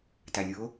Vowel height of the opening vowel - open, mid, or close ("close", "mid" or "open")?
open